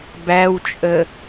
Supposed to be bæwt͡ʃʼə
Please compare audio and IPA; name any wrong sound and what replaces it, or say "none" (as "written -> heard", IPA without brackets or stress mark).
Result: none